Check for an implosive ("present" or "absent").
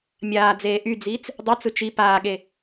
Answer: present